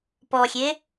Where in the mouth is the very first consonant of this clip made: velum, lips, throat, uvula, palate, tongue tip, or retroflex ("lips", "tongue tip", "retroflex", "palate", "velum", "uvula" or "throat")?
lips